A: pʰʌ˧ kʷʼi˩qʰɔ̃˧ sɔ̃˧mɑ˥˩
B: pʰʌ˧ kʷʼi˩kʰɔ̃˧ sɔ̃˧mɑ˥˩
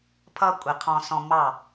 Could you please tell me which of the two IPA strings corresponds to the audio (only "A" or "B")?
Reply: A